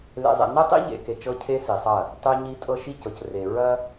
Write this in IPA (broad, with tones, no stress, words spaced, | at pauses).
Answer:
lḛ˨zˤḛ˨ nɛ˦tˤḭ˦ʎḛ˨ke˨ t͡ʃɤ˦cʰe˦si˨sˤɐ˦˨ | tˤe˦ɲi˦ tʼɤ˦ʃi˦cɤ˨c re˨ ɹɐ˦